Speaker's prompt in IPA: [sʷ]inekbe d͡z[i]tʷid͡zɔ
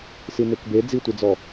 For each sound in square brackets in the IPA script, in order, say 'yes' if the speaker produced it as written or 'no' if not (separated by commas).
no, yes